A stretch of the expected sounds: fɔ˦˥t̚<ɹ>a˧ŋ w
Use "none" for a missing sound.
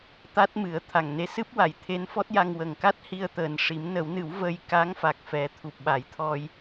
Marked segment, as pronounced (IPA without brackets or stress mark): j